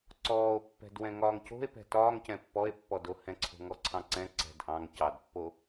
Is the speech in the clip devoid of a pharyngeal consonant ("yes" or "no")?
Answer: yes